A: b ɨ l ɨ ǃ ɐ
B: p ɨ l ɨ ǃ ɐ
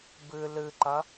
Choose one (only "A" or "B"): A